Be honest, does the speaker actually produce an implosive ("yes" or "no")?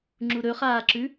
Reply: no